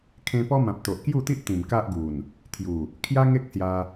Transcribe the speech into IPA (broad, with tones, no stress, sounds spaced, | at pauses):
kʰ ẽ˧ p ɔ˦ m ã˨ p̚ t̪ o˨ ʔ k j u˥˧ t̪ i˦ ʔ t̪ ĩ˨˩ m k a˦ ʔ ɡ u˨˩ n | t̪ʰ j u˨˩ | kʰ j a˦ ŋ e˦ k̚ s j a˧